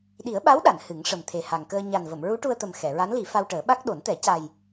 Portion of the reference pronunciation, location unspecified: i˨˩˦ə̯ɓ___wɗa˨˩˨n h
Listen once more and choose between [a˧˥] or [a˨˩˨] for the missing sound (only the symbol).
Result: a˧˥